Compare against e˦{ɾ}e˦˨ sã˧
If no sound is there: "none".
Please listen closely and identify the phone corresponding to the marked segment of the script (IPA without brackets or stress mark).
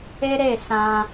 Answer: ɾ